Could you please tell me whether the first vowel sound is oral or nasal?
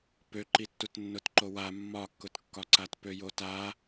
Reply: oral